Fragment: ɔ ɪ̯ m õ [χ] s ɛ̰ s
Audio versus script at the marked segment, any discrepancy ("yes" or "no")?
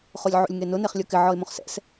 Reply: no